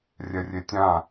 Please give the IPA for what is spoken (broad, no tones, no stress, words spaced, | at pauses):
rʲɛrʲetʲã